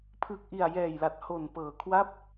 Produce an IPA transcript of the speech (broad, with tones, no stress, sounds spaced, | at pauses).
pʰ ɯː˨˩ k̚ ʔ i˨˩ a̯ j ɛː˨˩ j l a˨˩ t̚ h o˨˩ n p ɤː˨˩ kʰ w a˥˩ p̚